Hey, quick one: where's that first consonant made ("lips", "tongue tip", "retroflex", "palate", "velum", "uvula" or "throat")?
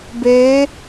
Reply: lips